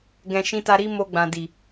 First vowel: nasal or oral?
nasal